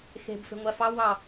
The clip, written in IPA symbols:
x e̤ b f e̤ ŋʷ æ f ɑ w ɑ

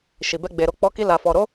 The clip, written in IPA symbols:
ʃ i˨ b ɛ˧ ɡ͡b e˨ ɾ o˧ k͡p ɔ˧ k i˧ l a˨ f ɔ˨ ɾ o˨˦

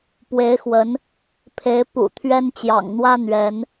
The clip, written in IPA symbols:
p w e˨˦ ɪ̯ x w ə˨˦ n | pʰ e˨˦ ɪ̯ p ṵ˨˩ t̪ʰ ɥ ɛ˦ n t͡ɕ j ɑ̰˨˩ ŋ n̪ w ä˦ n̪ ɥ ɛ˨˦ n

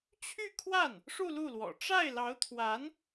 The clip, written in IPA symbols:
t͡ɕʰ y˥˧ kʰ w a˥˩ n | ʂ u˥˧ l u˥˩ l w ɔ̰˨˩ ʈ͡ʂ a˥˩ ɪ̯ l ɑ˧˥ ʊ̯ t̪ʰ w a˧˥ n

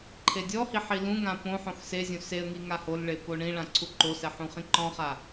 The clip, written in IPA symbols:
ǃʰ e dʲ ɔ h i ħ i l ũ ŋ ã p õ ħ õ x s e zʲ õ s e ə̯ ŋ i ŋ a h o l ɭ e p o ɳ ĩ ɭ ã ǀʰ u ǃ o s ɛ ħ ũ χ ĩ ǃ ɔ̃ χ a

